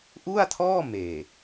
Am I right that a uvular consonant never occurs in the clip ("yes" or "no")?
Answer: yes